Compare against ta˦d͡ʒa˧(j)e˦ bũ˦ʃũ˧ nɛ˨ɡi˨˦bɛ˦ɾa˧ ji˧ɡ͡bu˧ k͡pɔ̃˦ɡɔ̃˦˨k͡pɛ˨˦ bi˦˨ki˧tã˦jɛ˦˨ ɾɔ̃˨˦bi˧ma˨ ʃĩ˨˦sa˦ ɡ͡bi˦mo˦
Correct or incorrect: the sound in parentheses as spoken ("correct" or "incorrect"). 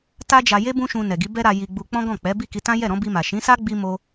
correct